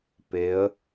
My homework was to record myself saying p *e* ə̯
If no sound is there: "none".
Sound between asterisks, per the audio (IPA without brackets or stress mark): e